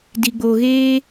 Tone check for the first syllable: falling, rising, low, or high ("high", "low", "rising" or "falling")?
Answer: low